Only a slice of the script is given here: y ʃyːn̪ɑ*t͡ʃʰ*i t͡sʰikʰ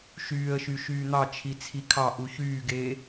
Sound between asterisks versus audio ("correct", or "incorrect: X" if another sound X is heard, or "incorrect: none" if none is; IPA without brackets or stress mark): correct